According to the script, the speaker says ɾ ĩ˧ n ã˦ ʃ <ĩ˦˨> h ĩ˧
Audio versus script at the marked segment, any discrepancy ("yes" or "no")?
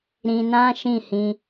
no